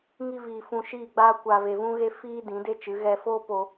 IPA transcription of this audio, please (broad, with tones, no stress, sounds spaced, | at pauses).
ŋ i˦ v iː˧ f ũ˧ ʃ iː˦˨ ɡ͡b aː˦ kʷ aː˧ v e˧ v ũ˦ ɣ e˦ f iː˦ d ĩ˨˦ d e˦ t͡ʃ ɨ˨˦ ɣ ɛ˧ f oː˦ p o˧